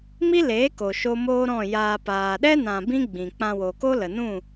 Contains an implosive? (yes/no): yes